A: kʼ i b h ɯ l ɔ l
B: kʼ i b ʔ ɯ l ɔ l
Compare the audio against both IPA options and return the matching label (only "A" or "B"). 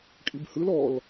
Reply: A